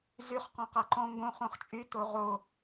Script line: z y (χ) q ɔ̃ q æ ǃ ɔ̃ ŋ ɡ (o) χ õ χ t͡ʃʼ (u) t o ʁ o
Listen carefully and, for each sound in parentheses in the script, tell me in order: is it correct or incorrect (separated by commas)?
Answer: correct, incorrect, incorrect